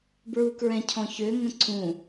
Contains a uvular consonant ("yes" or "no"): no